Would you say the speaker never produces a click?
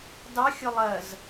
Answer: yes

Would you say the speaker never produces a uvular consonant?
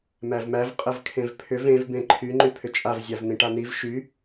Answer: no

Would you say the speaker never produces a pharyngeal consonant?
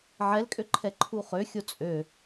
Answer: no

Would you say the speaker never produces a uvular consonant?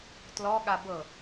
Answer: yes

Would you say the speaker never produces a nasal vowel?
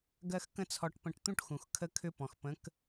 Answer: no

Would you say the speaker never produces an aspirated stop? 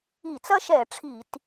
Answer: no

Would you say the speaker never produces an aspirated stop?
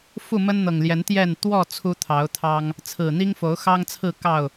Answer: no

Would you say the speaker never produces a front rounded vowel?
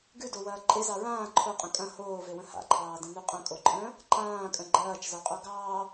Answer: yes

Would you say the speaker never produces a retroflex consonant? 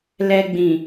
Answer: yes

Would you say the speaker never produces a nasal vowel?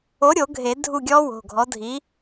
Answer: yes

